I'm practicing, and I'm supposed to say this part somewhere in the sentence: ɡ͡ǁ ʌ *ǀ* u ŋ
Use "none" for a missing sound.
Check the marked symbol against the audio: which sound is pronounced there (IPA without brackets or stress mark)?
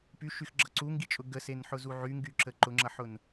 ǀ